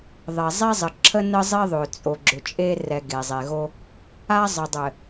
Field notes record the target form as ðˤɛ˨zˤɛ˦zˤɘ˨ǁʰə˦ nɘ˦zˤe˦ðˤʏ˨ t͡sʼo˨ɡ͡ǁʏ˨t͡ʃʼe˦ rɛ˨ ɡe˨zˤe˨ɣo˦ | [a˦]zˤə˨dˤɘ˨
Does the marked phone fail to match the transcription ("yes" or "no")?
no